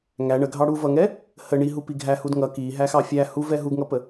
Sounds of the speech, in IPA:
ŋ æ ɳ ə ɡʱ ɑ ɽ u v ʌ ŋ ɛ | h ə ɳ i ɦ u p i ɡʱ æ h u d ŋ ʌ k i ɦ æ x ɑ fʲ æ h u v ɛ ɦ u ɡ ŋ ʌ p ə

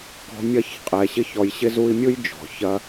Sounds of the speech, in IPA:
k ɔ̤˧ mʲ ɐ˦˨ ç qʼ ɛ˨ ɕ ɪ˦ ç ɔ˧ j ɕ ɪ˦ z u˦ i̯ mʲ ɯ˦ j d͡ʒ ɔ̤˨ ç ɐ˦

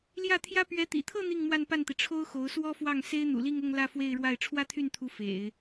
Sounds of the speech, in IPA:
l j ä˥˩ t̪ʰ j ä˥ p ɥ ɛ˧˥ t̪ ḭ˨˩ t̪ʰ ɤ˥˧ n̪ i˥˧ ŋ m w a˥˧ n p a˥˩ n t̪ i˩ ʈ͡ʂʰ o˥ ʊ̯ x o˧˥ ʊ̯ s w ɔ˥ f w ɑ˥˩ ŋ s e˥ ɪ̯ n̪ ṵ˨˩ l i˥˧ ŋ ʊ˥˧ ŋ l ä˥˧ f w e˥˧ ɪ̯ ɻ w a˥˩ ɪ̯ ʈ͡ʂʰ w ä˥ t̪ʰ y˥˩ n t̪ʰ u˧˥ f ḛ˨˩˦ ɪ̯

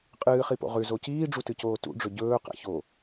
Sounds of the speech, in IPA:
qʼ ɨː χ i p o̰ ʁ ʉ z o c iː ɖ͡ʐ u t ɨ c oː t ṵ ɖ͡ʐ ɵ ɟ ɵː q a̰ ç o

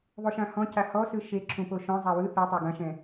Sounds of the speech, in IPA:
ðˤ u ʃ ã h ɔ̃ c a h ɔ s ɯ ʃ e ǁʰ ũ p o ʃ ɔ̃ zˤ a w ɯ θ e tˤ o ɡ ã ʃ ɛ̃

